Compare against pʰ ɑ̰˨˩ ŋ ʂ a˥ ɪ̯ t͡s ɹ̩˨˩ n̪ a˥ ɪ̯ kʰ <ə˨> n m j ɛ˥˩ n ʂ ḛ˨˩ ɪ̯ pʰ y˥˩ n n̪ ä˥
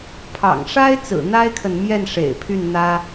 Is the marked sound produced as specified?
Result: yes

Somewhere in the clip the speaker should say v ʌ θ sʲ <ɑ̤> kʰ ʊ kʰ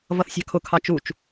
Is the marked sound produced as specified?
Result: yes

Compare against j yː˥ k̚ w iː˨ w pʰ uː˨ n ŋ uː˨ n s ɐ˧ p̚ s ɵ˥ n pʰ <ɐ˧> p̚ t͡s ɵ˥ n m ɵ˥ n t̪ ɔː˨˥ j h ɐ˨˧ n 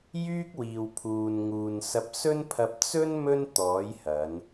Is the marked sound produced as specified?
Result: yes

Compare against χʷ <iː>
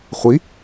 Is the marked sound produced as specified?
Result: no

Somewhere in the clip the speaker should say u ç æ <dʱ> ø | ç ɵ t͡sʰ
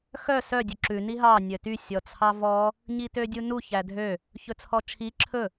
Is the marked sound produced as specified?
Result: yes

